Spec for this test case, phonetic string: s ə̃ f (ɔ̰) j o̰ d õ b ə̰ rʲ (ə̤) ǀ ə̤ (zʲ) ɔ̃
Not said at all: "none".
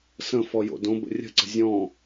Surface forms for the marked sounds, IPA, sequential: ɔ, ə̤, zʲ

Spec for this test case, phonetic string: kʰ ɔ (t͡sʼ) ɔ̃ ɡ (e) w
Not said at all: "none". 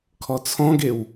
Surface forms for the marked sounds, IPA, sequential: t͡sʰ, e

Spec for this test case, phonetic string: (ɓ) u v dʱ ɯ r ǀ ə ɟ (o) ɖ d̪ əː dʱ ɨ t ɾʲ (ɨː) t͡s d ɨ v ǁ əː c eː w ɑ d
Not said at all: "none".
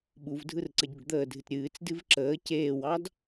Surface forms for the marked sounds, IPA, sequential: ɓ, o, ɨː

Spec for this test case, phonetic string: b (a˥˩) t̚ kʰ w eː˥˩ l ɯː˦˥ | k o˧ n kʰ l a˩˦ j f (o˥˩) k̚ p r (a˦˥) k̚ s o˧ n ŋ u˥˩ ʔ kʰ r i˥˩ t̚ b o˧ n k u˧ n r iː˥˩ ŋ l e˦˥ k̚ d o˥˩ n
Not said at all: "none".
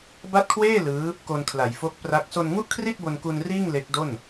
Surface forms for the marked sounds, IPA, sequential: a˥˩, o˦˥, a˦˥

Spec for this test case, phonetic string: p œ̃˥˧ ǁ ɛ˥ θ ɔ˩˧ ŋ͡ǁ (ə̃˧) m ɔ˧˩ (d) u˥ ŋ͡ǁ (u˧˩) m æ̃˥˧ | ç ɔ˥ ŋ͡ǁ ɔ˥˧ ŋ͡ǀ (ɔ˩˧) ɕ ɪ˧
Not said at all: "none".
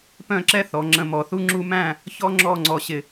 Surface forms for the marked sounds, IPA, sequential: ə̃˧, θ, u˥, ɔ˧

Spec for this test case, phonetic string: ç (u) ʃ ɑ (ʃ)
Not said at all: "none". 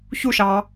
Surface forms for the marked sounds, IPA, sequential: u, none

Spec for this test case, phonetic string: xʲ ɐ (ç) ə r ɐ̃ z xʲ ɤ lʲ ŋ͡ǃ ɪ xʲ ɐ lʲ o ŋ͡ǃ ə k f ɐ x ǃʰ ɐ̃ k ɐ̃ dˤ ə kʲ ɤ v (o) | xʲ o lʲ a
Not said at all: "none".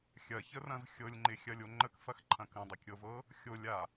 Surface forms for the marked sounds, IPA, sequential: ç, ɤ

